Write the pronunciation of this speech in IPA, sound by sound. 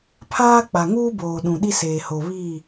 pʰaː˦k͡pa˨ŋuː˦boː˨ ɗũ˨ɗi˦seː˨ho˨ βi˦˨

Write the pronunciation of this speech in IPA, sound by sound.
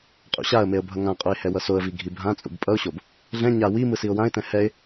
qʼṵɕaə̯meə̯ bʱʌŋãqʼoɪ̯ hɛwʌsoə̯vi ɡʱibʱãt͡sʼṵb pʼʌʊ̯ɕob | ɮɛ̃ ɲa wi mɯsiʊ̯wãɪ̯tɛ̃ hɛɪ̯

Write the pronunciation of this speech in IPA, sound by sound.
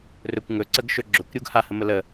rɵkʷ ŋɵ ǀəɡʃɵ ɡ͡ǁɵkʷɾʲuɡ hahəmə lə

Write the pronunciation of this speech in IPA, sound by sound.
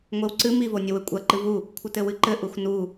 ŋʷewǀɨ mivonʲɘwɘ kʷʼɐ ǃɨvu | kʷʰɘtɘwɨǃɘ ʔuxnu

